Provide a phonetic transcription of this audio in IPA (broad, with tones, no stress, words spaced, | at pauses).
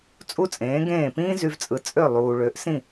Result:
t͡sʼu˥t͡sʼẽː˩˥ɡẽː˥˩ pĩː˥ zy˧vt͡sʼɯ˩˥ t͡sʼø˥˩lˠuː˩ɭø˩˥ʔ sĩ˥˩